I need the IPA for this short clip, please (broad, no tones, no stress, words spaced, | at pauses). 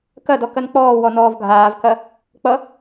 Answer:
kɐdɔ kɐnk͡pɔːwɔ nɔːvɡʱaːvkɐ | k͡pʌ